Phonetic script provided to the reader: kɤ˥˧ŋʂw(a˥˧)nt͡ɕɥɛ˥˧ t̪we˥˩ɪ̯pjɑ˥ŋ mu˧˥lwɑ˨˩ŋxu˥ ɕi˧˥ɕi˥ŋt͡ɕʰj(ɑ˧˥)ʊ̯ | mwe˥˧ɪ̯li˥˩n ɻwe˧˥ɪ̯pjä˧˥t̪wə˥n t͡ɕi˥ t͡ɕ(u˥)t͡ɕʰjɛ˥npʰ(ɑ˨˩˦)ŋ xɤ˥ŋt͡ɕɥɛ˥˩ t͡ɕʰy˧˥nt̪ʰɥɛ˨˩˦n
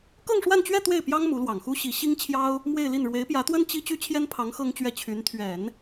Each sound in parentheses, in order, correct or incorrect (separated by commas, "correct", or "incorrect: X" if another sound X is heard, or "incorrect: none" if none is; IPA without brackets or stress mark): correct, incorrect: ɑ˥, incorrect: y˥, incorrect: ɑ˧˥